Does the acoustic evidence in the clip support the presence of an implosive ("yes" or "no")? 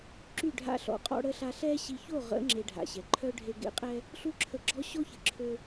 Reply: no